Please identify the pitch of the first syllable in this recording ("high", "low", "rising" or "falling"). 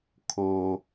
high